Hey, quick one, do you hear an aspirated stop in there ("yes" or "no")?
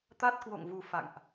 no